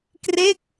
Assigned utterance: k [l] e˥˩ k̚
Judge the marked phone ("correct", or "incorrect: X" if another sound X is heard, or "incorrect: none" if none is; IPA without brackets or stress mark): incorrect: r